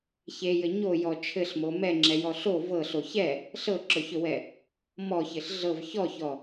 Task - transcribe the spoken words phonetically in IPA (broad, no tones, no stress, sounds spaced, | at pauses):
ç e j ɘ ɲ o j ɔ t͡ʃʰ ɘ ɬ m o m ɛ ŋ͡ǁ ɛ j ɔ ɬ o v ɤ ɬ o ç ɛ | ɬ ɤ ǁ ɵ ç ɵ w ɛ | m ɔ ç ɘ ɬ ɮ ɤ v ç ɔ ç ɔ